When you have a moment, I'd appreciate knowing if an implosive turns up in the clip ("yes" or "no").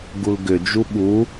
yes